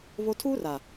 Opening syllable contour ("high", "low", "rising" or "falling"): high